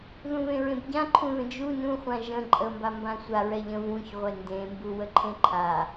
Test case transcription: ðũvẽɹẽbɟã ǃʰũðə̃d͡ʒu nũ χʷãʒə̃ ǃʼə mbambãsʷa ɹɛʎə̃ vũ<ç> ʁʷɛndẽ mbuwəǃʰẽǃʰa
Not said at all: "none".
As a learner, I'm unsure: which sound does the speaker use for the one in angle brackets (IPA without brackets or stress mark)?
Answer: ç